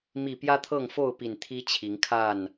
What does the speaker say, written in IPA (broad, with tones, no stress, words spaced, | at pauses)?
mi˨˩ pjä˦t̪ʰɤ˥˨ŋfo˥˨ʊ̯pi˨˩n t̪ʰi˦t͡ɕʰi˨˦ŋkʰa˥˨n